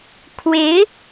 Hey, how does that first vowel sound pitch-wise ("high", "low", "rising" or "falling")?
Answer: rising